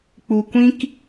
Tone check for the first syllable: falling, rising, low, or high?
low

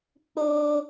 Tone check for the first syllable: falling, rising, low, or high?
high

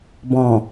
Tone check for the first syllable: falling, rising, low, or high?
low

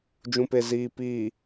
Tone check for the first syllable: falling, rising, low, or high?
low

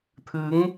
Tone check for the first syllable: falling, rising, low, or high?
rising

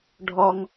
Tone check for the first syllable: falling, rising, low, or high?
high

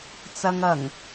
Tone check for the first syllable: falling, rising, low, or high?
low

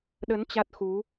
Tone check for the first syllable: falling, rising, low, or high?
rising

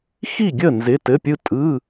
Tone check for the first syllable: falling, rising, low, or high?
falling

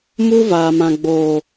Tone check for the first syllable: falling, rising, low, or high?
high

